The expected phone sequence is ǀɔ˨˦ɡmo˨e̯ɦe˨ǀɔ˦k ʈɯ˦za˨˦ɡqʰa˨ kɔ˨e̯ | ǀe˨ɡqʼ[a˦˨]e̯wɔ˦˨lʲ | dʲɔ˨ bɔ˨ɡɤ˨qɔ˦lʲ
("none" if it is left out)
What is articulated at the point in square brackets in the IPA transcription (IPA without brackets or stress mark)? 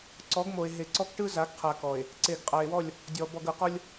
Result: a˨